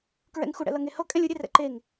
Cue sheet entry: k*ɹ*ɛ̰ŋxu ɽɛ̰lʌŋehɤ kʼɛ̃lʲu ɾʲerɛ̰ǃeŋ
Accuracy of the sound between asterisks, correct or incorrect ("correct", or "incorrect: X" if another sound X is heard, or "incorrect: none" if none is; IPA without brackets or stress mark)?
correct